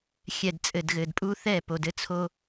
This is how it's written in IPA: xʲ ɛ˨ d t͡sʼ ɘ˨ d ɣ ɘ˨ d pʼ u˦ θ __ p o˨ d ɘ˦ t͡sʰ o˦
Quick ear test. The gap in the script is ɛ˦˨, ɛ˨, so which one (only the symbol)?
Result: ɛ˦˨